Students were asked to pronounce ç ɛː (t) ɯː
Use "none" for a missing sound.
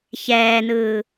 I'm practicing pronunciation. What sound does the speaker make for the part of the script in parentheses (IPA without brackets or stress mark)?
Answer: n